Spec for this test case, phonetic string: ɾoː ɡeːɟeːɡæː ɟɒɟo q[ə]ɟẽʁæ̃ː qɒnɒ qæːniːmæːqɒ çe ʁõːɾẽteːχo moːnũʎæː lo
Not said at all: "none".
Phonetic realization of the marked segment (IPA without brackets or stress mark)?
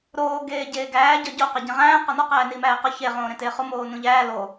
æ